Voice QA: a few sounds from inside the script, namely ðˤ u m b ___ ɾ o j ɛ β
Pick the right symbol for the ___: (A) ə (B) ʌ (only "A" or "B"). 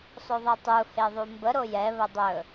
A